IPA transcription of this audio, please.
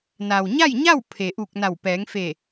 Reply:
n a˩ w ɲ a˥˨ j ɲ a˥˨ w pʰ e˩ ʔ u˧˩ k̚ n a˧˩ w p ɛː˩˧ ŋ f e˧˩

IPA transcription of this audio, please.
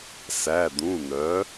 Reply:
s æ˩˧˩ d̪ ũ˩˧˩ n̪ œ˩˥

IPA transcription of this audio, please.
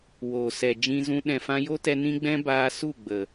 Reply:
w oː˨ s ɛ˨ d͡ʒ ĩ˧ z ũ˧ ɗ ɛ̃˨ f ã˧ j o˦ t ɛ˧ n ĩ˦ ɡ͡b ɛ̃˦ b aː˧ s u˦˨ ɡ͡b ə˨

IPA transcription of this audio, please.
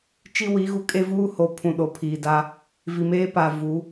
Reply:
t͡ʃ i˦ w i˨˦ ɣ u˨ kʼ e˦ v uː˦ h o˨ pʰ ũ˨ ɗ o˨ pʰ iː˨ d a˦ | v i˨ m eː˦ p a˨ v u˨˦

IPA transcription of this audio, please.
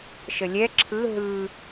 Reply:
ʃ ə lʲ ɛ ǁʰ ɯ ɦ ɯ

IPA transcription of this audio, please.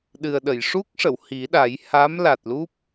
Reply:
ɗ ɨ˨˩ ə̯ ɗ ə˨˩˨ j ʂ u˦˥ k̚ ʂ ə˨˩˨ w h i˨˩˦ ɗ a˨˩˦ j h aː˧˥ m l a˨˩ t̚ l u˦˥ p̚

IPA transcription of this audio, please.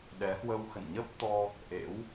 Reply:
ɗ ɛ˨˦ h w ə˧ w x ə̰˧˨ n ɲ ə˦˥ p̚ t̪ ɔ˧ | ʔ ḛ˧˥ w

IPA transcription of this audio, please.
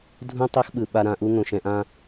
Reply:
dʱ ũ˧ tˤ o˧ x ɓ ɯ˩ ɓ a˧ ɾ ã˧ ʔ u˥ ŋ õ˩ ʃ ɛ̃˧ ʔ ã˥

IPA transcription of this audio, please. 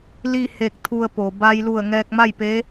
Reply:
l i˥˨ h e˧ k̚ t̪ʰ u˧ ə̯ p o˩ b a˧ j l u˧˩ ə̯ ŋ ɛː˧ k̚ m a˥˨ j p e˧˥

